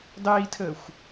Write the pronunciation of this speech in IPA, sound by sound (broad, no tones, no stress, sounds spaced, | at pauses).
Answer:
dˤ iː tʰ əː xʷ